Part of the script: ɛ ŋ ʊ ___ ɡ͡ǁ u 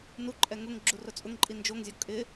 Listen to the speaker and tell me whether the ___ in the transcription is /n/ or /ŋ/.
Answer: ŋ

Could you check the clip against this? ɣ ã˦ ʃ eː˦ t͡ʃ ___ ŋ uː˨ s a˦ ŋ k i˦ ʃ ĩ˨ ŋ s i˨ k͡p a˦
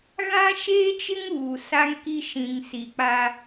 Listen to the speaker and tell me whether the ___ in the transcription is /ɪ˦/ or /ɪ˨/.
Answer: ɪ˦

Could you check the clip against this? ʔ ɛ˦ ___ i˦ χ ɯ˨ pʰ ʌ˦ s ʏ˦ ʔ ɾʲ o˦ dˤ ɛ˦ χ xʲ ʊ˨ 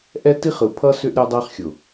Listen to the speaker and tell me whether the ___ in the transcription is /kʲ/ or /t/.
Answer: t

